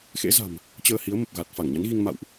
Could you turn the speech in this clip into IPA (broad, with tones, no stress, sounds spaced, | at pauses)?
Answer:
x ḛ˧˥ z a̤˨˩ m | t͡ɕ əː˧ h i˨˦ ə̯ m ə˨˩ p̚ ɣ a˨˩ t̚ f a˧˩ ŋ ɲ a˨˦ n ɣ i˧ ŋ m a̰˧˨ w ʔ